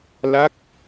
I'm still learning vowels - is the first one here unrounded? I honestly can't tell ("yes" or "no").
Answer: yes